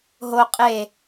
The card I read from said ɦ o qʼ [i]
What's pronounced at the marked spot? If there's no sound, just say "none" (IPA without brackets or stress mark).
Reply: e